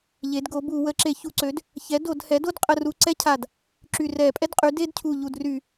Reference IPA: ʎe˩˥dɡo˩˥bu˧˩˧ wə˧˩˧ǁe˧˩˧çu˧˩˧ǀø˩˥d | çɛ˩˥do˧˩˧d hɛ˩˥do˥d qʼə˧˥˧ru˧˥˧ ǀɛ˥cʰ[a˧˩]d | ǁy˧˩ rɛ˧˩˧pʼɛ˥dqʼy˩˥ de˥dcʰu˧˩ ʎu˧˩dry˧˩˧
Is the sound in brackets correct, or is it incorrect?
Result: correct